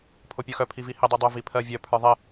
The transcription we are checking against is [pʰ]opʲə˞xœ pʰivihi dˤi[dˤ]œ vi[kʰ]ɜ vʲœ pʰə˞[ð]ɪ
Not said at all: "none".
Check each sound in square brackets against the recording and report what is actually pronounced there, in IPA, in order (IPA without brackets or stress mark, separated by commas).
pʰ, dˤ, pʰ, ðˤ